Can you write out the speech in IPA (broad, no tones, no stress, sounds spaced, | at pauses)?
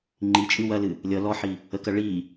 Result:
ŋ͡ǃ i t͡ʃʼ ɨ w ɐ l ɨ | lʲ ʌ l ɔ ħ i | ə k ɐ ɭ i